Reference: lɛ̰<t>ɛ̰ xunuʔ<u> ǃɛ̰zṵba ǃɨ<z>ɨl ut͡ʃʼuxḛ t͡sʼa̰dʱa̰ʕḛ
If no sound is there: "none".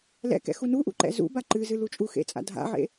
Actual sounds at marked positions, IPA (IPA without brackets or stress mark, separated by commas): k, ṵ, z